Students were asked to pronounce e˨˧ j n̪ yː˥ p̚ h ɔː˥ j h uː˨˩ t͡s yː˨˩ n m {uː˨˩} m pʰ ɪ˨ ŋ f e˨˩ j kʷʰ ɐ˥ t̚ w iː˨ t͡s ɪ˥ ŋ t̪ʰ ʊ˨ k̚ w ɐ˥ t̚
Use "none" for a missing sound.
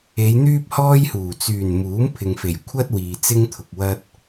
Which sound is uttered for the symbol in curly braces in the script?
uː˨˥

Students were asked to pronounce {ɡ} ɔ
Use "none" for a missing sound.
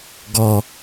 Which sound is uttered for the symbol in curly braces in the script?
ɡ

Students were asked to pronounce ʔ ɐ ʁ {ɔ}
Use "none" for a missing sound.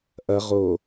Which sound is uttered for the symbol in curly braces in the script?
o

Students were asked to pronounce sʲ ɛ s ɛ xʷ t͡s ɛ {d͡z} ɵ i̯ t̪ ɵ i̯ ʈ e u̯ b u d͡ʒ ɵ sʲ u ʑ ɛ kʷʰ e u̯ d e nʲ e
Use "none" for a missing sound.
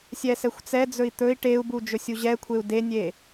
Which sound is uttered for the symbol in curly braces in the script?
d͡z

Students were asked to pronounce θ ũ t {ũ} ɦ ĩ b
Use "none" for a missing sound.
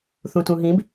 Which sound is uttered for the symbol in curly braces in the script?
ũ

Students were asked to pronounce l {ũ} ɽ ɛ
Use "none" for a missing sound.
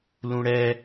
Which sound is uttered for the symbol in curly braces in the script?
ũ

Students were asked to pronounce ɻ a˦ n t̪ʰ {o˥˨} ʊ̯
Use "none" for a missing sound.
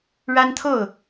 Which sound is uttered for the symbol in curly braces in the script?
o˥˨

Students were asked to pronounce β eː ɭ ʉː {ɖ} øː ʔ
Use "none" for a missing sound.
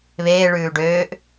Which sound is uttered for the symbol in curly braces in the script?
ɖ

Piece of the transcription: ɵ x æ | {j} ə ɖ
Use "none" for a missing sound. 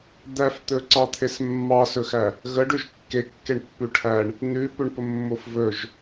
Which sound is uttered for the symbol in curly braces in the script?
ɣ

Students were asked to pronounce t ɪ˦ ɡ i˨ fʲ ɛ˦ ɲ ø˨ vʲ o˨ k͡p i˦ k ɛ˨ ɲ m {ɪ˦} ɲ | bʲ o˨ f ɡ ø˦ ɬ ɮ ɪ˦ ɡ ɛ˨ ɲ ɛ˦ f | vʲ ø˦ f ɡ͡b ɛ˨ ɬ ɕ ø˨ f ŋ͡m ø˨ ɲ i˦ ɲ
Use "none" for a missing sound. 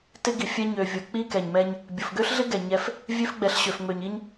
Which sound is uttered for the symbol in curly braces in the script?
ɛ˦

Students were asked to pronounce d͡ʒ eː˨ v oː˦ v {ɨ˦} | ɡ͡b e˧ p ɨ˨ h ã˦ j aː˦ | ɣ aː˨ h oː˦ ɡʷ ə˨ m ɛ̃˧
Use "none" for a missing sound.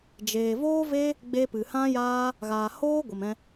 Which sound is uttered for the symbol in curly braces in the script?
e˦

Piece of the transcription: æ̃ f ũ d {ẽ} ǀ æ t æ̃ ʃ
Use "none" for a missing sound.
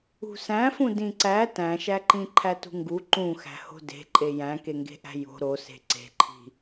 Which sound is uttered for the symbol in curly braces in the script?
ĩ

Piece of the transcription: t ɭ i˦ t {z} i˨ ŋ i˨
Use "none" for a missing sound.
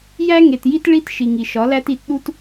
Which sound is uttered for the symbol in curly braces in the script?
ʃ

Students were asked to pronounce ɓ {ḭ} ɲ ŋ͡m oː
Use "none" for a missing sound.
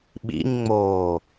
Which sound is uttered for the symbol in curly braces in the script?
ḭ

